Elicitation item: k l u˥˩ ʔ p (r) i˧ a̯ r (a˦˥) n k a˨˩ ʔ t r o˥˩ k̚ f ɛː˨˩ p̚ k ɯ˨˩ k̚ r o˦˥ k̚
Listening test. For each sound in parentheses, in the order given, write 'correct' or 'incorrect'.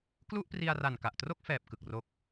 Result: correct, incorrect

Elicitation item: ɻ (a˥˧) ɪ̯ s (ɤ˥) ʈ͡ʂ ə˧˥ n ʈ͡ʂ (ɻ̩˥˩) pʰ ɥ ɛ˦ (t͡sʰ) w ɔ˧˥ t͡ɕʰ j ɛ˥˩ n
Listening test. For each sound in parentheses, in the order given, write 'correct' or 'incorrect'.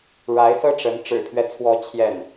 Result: incorrect, correct, incorrect, correct

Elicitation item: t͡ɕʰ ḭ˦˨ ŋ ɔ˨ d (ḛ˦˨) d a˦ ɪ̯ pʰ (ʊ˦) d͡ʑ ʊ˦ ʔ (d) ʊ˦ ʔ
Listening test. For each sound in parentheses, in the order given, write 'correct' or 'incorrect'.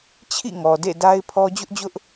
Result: correct, incorrect, incorrect

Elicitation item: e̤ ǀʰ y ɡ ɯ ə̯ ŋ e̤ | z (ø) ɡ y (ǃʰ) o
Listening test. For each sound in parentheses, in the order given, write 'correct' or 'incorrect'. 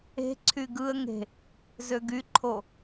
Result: correct, correct

